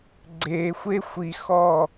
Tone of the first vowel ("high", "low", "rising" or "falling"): low